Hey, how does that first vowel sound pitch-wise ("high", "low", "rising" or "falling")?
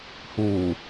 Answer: low